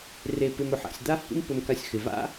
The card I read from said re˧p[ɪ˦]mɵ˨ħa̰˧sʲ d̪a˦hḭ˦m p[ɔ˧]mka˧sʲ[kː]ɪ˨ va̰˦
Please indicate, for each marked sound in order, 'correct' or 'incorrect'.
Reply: incorrect: ɪ˧, incorrect: ɵ˧, incorrect: x

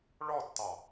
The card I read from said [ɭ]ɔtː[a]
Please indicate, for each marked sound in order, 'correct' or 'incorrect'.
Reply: correct, incorrect: ɑ

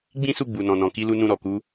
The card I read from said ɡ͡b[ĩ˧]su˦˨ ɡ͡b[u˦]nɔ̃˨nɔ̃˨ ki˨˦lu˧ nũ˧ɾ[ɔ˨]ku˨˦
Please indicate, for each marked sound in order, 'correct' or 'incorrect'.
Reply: incorrect: ĩ˦, incorrect: u˨, correct

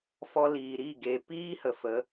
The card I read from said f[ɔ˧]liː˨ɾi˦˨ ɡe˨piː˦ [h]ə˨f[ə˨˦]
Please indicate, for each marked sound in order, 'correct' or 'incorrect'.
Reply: correct, correct, correct

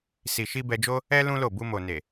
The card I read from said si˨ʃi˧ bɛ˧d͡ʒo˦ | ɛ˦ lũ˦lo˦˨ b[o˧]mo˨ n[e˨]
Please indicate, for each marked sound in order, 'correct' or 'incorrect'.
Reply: incorrect: u˧, correct

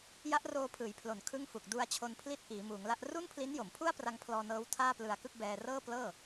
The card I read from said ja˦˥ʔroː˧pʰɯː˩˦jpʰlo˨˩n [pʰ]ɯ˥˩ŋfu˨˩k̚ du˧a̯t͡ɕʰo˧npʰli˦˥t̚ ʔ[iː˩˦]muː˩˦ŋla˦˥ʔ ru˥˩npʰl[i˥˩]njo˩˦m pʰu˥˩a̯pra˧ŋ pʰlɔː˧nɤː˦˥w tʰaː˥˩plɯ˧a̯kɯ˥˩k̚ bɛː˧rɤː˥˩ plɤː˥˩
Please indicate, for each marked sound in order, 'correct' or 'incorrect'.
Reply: incorrect: kʰ, correct, incorrect: i˦˥

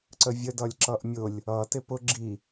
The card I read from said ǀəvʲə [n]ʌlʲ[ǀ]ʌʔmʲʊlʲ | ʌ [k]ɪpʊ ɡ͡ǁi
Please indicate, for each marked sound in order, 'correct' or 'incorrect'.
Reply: incorrect: d, incorrect: ǁ, incorrect: t

